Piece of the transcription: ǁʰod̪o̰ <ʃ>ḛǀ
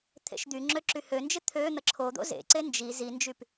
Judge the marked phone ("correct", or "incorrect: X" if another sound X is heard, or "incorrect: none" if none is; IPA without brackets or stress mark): incorrect: z